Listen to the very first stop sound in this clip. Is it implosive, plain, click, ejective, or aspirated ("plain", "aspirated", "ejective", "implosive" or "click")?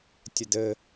plain